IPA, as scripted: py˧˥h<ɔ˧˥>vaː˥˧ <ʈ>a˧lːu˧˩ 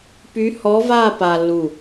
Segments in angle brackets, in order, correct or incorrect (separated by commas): correct, incorrect